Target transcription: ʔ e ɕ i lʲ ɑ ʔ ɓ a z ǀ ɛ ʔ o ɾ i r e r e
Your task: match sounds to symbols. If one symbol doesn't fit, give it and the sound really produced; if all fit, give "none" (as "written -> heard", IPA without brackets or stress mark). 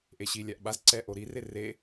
ɑ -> a